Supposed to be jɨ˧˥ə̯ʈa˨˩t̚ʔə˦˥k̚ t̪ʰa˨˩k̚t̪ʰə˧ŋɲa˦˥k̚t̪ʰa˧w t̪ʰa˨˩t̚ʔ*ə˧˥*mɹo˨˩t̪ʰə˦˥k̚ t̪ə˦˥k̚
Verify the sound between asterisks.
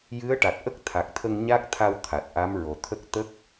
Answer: incorrect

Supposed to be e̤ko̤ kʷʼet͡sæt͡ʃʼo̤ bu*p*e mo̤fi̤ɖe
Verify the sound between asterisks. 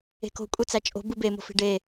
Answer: incorrect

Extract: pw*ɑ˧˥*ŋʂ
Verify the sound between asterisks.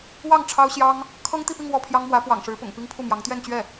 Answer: incorrect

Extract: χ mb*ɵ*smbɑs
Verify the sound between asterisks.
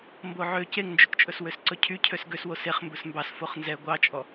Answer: correct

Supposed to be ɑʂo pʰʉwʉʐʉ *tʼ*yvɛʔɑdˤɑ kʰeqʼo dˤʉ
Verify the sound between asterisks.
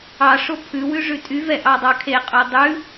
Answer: correct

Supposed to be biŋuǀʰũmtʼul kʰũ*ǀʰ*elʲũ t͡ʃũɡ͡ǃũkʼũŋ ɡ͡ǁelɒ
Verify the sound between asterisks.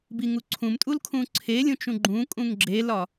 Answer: correct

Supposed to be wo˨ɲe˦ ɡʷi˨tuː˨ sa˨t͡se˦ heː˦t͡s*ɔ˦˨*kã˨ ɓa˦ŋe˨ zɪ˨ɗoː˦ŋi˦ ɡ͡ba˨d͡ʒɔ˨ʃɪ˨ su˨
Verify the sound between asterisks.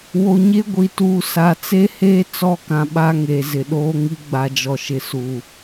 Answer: correct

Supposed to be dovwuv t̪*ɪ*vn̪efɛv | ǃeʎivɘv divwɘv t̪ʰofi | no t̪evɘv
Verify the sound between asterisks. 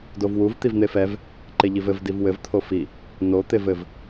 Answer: incorrect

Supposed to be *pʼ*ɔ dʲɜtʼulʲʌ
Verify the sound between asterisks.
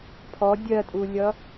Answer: incorrect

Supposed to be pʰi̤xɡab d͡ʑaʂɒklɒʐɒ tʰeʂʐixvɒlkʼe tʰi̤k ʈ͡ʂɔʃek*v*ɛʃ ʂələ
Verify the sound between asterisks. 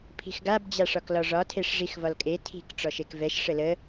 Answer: correct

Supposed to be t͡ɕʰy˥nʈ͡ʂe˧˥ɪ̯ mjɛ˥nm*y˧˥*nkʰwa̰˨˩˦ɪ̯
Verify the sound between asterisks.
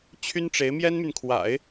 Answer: incorrect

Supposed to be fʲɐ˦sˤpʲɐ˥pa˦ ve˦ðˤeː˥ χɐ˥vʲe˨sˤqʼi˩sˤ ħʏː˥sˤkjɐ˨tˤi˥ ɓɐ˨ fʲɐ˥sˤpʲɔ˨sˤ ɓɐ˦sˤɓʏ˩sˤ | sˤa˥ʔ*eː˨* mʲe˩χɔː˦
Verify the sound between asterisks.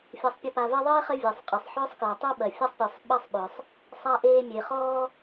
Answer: incorrect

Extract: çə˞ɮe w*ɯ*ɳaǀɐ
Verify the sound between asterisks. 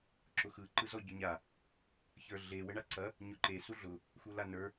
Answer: incorrect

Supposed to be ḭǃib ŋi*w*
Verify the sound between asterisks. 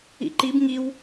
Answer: correct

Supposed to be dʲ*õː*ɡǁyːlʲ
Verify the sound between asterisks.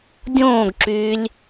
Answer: correct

